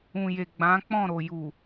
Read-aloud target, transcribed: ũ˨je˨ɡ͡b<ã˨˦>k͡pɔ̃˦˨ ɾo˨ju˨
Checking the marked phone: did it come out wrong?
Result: no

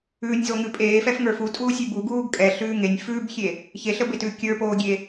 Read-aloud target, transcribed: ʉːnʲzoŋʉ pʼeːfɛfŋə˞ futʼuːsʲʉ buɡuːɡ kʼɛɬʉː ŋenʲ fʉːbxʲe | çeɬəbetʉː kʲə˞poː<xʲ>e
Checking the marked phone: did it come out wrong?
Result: yes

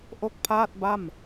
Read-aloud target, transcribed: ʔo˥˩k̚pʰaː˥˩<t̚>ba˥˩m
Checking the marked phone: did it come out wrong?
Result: no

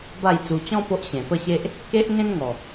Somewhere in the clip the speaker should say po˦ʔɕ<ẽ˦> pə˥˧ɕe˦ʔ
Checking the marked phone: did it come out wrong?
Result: yes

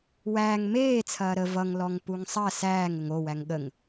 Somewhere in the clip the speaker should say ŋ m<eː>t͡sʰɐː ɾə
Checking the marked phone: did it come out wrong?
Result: no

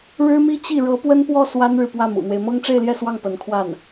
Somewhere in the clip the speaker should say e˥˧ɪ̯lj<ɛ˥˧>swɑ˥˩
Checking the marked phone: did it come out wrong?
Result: no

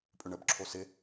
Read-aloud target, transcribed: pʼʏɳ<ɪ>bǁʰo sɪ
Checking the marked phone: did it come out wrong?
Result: yes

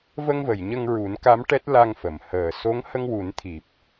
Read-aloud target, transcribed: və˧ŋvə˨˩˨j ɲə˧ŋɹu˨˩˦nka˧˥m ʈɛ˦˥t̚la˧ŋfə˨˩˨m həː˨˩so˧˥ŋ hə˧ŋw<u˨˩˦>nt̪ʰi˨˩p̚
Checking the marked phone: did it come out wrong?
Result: no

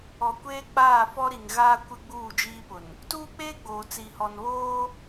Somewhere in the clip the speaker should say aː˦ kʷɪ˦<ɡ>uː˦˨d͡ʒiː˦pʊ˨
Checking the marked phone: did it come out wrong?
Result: yes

